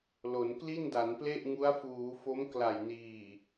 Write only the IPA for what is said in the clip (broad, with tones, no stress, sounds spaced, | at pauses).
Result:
l o˩˦ n k l i˥˩ n d a˩˦ n p l e˥˩ ʔ ŋ u˦˥ a̯ f uː˩˦ f o˦˥ m k l a˨˩ j n iː˨˩